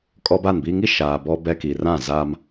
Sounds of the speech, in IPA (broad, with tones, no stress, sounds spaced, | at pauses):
kʼ ɔ˦ b a˦˨ n b iː˦ ŋ i˦ ʃ aː˨ b ɔ˦ b ɛ˦ k i˨ r ã˦˨ z aː˦ m